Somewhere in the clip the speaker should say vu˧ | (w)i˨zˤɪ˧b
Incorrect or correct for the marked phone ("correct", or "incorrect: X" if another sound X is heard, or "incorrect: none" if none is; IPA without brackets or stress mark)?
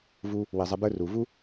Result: correct